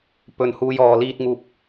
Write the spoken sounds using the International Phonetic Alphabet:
p ɵ˨ n h uː˧ j ɔː˨ l iː˧ t̚ ŋ uː˧ p̚

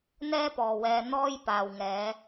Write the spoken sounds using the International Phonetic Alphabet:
n̪ ɛː˥ p ɔː˨ w ɛː˧ n̪ ɔː˧ j p aː˨ w ŋ ɛː˨˧

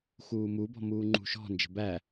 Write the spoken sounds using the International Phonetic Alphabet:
x uː m u b ɔ̤ m uː ŋ͡ǃ ṳ ʃ ɔ̤ n d͡ʒ ə̤ b æ

